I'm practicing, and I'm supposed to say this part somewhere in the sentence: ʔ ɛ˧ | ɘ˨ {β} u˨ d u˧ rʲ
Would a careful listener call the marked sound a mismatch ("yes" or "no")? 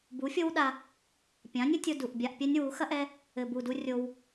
yes